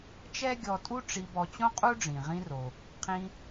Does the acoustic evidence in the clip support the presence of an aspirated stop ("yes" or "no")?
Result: yes